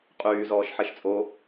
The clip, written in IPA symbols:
qʼyː zɔːʃħeʃt͡sʼo

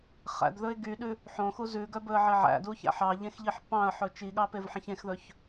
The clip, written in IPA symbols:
χæ̰dðɵɪ̯ ɡyɗʉ | ħõxu zʉɡœbɵə̯ʕe ʕæ̰duçæ̰ ħɑʎẽxʎiħ pɑ̃ə̯ħɵ t͡ʃiɠɑpevħẽç ẽxðɵç

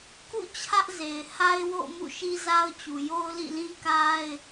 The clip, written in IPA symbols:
kṵ˦˨ t͡ɕʰä˦ʔze˨ɪ̯ ha˦ɪ̯wo̰˦˨ʊ̯ mṵ˦˨ʃi˦za˦ʊ̯t͡ɕu˨ jo˦ʊ̯lḭ˦˨lĩ˦ ka˦ɪ̯

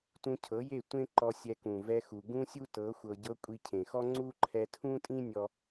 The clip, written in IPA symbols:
tũ˧cʰɤ˨˦je˦˨ tʷẽ˦ǃɔ˧ sʲɛ˧kũ˨vɛ˧xu˨ ɡũ˦sʲu˦tɤ˨˦ xʷɤ˧ɟɤ˦ kʷʼi˧cʰẽ˨xɔ˦ ŋ͡ǀu˦ ǃʰɛ˧tʰũ˦tʼĩ˦ nʲɔ˧

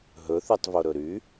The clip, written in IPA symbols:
ɦɵθytˤvoɾɵ ɾy

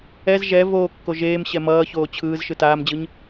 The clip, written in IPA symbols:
ɛz ʒɛ voːkːo ʒeːm ɕɛmʌːçoː t͡ɕʰɯːz ʃɯtaːmd͡ʑɯɲ

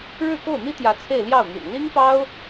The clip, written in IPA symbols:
ɻɻ̩˥˧ko˥˩ʊ̯n̪i˥t̪jä˧˥ t͡sʰe˥˧ɪ̯ljɑ˥˩ʊ̯n̪y̰˨˩n li˥ŋpɑ˥ʊ̯

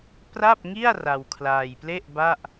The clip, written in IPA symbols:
pra˥˩p̚ŋi˥˩a̯ ra˧wkʰlaː˧jple˥˩ʔ ba˥˩ʔ

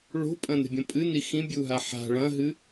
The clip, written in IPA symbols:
ɭo̤pʼɐ̃ne̤bʲɐ̃ pʼɨni xĩbʲuɦa ħa̤ ɭɐ̃ɦɨ

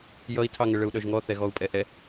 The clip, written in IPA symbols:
jʌi̯tʰɑŋə ɭəu̯ɗœʒŋɔ θɛɣɔu̯pʼɛʔɛ

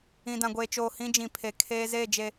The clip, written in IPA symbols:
ĩ˨dã˨ɡʷeː˨t͡ʃoː˨ hĩ˦d͡ʒĩ˨ pʰe˨ kʰeː˦ zeː˦˨d͡ʒe˨

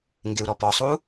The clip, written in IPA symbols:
ŋɡɪu̯ɾɔpɔsˤu

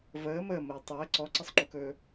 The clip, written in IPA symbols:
vəː məːməː tˤəː ǀɔǀəsˤŋ͡ǃukɵː

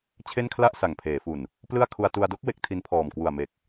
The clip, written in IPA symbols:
t͡ɕʰe˥˩nkʰla˥˩ʔ sa˨˩ŋpʰeː˩˦fu˨˩n | plɯ˥˩a̯ kʰu˧a̯tu˧a̯ do˦˥k̚ we˦˥k̚tʰi˧npʰɔː˨˩m kwu˨˩a̯me˨˩k̚

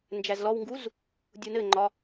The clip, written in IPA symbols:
nd͡ʒæzlɔwŋɡuz | dʲunɘŋ͡ǃɒ

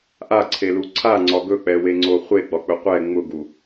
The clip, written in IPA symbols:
ʔaǀʰelu ǀʰaŋ͡ǀɒ ɡɵk͡pɛweŋ͡ǀo χʷeɡ͡bɒk͡pɵ qʷɛ ŋ͡mʊɡu

